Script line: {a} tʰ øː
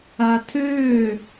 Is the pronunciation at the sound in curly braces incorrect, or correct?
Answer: correct